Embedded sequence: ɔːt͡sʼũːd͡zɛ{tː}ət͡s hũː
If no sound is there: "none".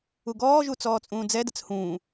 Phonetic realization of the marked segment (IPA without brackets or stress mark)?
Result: d